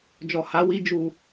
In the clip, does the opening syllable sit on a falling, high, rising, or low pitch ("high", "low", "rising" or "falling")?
low